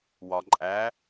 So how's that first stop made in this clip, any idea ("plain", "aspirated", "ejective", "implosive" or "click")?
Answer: click